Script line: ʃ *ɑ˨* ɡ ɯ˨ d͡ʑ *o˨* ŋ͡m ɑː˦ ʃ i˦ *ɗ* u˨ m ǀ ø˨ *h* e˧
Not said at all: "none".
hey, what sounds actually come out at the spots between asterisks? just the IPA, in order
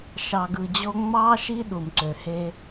ɑ˨, o˧, ɗ, h

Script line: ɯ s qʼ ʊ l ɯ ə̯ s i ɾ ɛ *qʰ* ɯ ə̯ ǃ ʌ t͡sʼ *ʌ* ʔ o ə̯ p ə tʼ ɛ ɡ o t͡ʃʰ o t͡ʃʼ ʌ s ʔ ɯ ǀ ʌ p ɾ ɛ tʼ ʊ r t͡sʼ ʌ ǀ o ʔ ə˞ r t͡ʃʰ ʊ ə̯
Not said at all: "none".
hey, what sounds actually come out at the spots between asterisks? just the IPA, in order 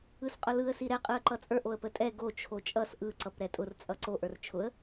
qʼ, ə˞

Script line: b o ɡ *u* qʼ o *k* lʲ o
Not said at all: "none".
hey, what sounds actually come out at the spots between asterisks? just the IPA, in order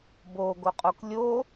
o, k

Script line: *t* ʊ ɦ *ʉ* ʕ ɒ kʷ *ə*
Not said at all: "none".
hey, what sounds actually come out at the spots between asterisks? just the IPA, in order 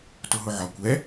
t, ʊ, ɛ

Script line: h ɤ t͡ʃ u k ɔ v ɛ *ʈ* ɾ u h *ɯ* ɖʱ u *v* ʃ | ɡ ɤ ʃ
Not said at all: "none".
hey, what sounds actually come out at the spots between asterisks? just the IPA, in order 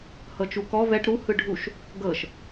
ʈ, ɯ, none

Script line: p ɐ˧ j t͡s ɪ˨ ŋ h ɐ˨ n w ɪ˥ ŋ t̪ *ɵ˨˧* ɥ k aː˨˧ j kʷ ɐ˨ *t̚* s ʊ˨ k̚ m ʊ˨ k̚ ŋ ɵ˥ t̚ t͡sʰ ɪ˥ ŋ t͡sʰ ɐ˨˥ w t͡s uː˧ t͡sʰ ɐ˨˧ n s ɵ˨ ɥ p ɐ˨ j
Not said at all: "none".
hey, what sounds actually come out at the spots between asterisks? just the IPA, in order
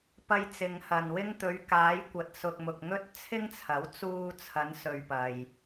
ɵ˨˧, t̚

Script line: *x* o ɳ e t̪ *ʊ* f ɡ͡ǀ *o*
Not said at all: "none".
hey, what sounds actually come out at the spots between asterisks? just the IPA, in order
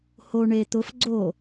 h, ʊ, o

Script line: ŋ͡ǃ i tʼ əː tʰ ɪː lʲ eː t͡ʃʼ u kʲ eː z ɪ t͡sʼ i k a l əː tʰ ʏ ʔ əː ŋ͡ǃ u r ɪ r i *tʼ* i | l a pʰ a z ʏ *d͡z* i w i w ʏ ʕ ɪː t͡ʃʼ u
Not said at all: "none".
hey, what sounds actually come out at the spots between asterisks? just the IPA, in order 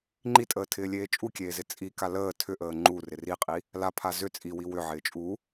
qʼ, t͡sʼ

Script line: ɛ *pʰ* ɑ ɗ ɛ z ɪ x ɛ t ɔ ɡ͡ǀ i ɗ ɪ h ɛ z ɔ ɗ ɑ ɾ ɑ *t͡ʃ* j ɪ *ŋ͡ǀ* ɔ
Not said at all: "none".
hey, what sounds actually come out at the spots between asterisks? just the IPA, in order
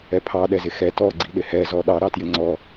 pʰ, t, ŋ͡ǀ

